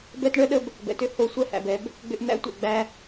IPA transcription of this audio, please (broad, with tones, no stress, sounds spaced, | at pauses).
b ɛ˦ t ɳ œ˦ ɗ ə˦ b | b ɛ̰˨ t ʏ˦ h o˨˦ sʷ ɛ˧ h æ̰˨ b ɛ˨˦ b | ɡ͡b ʏ˧ ʔ n̪ æ̰˦ tʷ ɛ̰˨ ɡ͡b æ˦